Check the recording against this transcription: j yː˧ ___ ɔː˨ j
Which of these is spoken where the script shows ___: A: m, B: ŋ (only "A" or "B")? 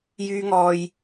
B